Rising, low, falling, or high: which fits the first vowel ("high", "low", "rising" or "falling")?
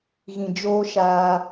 low